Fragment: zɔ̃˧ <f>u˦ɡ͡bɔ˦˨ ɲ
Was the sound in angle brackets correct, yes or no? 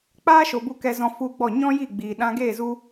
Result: yes